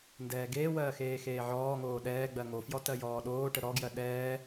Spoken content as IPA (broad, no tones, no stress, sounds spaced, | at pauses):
n d ɛː ɡ eː w ɜː x eː x eː ʕ ɔː ŋ oː ɗ ɛː ɡ͡b ɜ ŋ o f j ɔ t ɜ j ɔː ɗ oː ʈ ə ɾ ɔ ɡ j ɜ ɗ ɛː